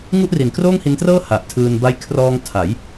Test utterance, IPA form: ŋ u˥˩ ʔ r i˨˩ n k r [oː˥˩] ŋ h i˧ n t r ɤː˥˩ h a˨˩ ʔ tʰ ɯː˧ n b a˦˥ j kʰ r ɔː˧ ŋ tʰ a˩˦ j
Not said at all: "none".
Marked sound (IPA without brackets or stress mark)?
oː˥˩